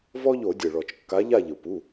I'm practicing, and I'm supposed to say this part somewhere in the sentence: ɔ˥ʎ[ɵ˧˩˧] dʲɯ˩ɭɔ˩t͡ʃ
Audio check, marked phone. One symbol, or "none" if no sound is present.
o˧˩˧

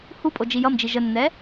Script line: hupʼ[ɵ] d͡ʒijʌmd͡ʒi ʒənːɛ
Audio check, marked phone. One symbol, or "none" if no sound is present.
o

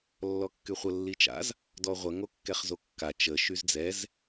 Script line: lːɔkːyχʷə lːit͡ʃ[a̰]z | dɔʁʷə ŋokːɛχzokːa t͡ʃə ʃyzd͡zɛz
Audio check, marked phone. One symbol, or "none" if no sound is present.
a̰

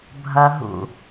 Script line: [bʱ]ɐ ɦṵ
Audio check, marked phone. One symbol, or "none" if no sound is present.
bʱ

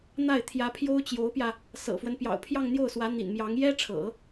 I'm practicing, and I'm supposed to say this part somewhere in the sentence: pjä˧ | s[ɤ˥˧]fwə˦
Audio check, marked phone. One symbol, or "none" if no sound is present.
ɤ̰˨˩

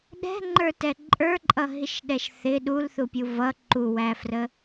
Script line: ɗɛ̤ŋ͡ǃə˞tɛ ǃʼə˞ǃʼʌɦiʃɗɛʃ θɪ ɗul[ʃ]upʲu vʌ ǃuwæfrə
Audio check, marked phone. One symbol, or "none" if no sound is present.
θ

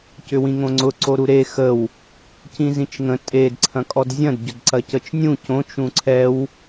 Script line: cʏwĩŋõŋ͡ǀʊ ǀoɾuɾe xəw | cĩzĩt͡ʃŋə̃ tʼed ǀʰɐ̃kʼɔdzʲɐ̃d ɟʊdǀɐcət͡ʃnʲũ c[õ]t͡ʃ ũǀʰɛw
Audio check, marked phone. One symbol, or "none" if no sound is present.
õ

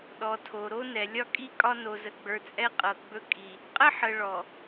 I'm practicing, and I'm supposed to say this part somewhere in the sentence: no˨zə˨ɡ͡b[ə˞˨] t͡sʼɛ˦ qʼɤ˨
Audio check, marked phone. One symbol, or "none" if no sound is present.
ə˞˨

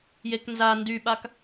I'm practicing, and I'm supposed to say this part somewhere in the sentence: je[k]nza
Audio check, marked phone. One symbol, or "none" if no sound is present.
k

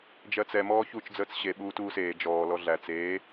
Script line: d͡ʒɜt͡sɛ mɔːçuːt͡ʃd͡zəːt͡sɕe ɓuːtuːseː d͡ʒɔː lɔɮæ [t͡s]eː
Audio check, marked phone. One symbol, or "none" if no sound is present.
t͡s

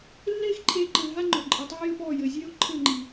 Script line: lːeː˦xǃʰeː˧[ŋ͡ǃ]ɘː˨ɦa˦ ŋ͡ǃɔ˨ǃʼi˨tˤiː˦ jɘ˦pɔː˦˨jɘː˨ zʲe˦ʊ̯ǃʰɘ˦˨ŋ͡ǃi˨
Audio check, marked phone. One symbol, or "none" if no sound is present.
ǃ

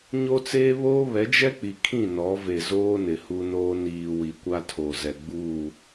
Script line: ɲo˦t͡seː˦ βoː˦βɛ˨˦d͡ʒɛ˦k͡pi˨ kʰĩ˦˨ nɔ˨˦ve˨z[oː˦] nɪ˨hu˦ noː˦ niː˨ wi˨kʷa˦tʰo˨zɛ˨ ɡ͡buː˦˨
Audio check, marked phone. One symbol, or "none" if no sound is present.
oː˦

